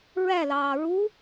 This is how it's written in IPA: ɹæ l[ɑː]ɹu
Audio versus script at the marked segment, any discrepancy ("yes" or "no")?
no